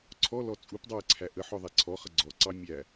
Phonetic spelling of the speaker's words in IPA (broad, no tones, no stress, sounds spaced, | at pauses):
ǀʰ ɔ l ɔ t͡sʼ u p dˤ ɑ ə̯ ǀʰ æ ʔ ə ħ ɔ ðˤ æ ǀʰ ɔ χ ə ɡ͡ǀ ɔ ǀ ɑ mʲ æ